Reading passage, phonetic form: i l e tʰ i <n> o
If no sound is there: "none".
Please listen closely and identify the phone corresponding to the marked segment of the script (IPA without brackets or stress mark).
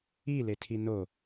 n